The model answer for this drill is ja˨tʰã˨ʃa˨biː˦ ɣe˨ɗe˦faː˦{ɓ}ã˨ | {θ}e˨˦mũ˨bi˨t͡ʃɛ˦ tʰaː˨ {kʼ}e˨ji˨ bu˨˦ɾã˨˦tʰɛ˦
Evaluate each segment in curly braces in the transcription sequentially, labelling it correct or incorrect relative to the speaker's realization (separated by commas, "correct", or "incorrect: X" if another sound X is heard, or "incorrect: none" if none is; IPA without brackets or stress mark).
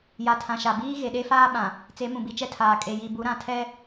correct, incorrect: t͡s, correct